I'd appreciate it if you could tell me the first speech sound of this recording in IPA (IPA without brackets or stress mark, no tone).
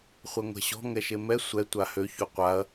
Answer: χʷ